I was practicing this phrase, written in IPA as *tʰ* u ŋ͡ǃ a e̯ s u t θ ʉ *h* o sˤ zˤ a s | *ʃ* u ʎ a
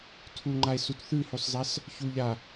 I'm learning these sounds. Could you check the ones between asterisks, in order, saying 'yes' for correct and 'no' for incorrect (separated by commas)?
yes, yes, no